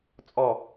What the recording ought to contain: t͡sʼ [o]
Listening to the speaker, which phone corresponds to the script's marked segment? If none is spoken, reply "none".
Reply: ɔ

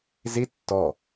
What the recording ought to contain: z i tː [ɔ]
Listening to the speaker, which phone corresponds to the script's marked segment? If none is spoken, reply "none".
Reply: ɔ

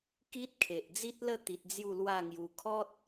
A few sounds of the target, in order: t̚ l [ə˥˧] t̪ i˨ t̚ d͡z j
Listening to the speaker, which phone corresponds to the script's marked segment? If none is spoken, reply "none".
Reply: ə˥˧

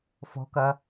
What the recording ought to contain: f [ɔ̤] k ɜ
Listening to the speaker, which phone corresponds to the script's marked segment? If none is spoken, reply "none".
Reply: ɔ̤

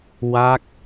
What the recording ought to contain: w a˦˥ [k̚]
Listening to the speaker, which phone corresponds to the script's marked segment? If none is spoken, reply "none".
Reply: k̚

